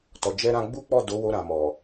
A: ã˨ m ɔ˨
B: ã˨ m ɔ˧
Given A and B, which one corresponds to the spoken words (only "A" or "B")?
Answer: A